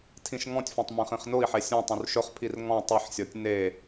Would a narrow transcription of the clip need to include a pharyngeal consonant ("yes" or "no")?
yes